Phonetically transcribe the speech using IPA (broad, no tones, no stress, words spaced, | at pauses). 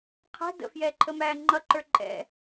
qʰæ̤ də̰fjɛːǃʰəmæː ŋ͡ǃʌǃə˞ ǃʼɛ̰